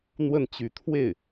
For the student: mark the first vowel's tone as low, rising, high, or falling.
falling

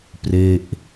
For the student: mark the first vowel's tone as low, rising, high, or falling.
falling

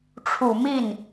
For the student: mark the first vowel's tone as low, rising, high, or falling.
low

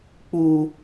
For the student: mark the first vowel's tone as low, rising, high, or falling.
high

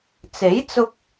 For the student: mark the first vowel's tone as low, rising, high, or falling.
rising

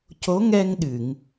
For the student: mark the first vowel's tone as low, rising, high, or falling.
rising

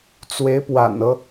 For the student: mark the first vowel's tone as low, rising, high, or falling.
rising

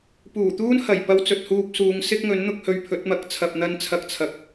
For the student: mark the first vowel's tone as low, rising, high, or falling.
low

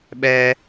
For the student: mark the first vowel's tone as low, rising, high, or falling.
high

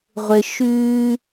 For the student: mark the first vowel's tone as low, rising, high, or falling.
low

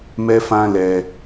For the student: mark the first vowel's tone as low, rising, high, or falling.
high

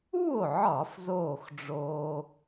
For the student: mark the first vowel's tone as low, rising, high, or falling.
falling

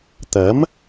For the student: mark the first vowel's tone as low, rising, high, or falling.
rising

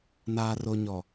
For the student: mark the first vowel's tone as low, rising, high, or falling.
low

